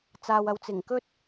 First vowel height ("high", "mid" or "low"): low